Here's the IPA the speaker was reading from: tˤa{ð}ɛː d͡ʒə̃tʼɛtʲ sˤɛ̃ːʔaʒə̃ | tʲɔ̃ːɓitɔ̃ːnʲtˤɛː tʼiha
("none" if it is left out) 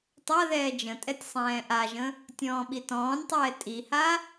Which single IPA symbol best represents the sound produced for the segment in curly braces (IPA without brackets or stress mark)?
ð